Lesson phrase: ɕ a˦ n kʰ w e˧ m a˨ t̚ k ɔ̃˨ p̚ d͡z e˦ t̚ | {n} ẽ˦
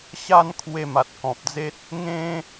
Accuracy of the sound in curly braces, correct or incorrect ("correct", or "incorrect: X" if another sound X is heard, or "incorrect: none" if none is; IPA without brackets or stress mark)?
incorrect: ŋ